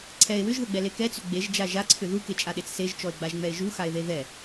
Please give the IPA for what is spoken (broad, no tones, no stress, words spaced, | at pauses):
ǀʰɛe̯ wʏʒðəɡ͡bɛle kɛt͡sʏ ɡ͡beʒd͡ʒa ʒaǀʰʏ ðuket͡ʃʼaɗet͡s seʒt͡ʃɔe̯ɡ͡baʒŋ͡mɛe̯ ʒuxae̯ðe ðɛ